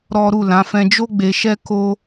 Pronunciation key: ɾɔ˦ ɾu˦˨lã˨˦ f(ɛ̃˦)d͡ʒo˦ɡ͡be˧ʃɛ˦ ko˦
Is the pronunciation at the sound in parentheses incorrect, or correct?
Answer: incorrect